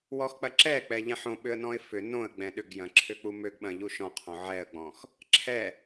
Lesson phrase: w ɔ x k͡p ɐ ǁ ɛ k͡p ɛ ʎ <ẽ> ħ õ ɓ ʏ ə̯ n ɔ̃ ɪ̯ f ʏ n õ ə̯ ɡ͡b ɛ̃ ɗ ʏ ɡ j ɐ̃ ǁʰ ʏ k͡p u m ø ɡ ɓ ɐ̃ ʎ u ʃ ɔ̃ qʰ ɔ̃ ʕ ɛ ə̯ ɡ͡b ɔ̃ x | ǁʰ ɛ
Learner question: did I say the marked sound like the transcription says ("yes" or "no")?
no